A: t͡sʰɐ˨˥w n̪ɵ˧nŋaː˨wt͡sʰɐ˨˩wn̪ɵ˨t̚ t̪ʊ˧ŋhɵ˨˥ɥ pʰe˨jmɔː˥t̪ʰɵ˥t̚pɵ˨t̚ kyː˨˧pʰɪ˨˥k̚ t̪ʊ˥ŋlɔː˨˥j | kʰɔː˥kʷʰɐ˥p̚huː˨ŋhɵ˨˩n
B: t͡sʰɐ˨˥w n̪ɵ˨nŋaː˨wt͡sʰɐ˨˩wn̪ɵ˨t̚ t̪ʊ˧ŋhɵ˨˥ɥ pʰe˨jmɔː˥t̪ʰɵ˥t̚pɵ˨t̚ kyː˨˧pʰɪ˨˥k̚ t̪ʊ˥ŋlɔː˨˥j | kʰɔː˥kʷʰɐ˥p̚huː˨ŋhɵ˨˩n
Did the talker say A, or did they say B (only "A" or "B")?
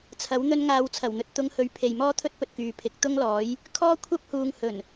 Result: A